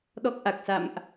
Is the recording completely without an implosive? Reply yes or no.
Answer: no